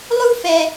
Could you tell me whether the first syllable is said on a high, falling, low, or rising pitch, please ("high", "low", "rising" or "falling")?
high